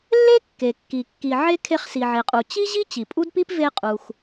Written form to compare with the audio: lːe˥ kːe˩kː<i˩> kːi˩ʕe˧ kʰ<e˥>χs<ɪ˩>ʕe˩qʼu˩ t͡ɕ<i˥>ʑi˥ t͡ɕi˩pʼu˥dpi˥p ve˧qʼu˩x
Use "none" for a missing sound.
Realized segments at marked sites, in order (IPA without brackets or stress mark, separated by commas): i˩, e˧, i˩, i˥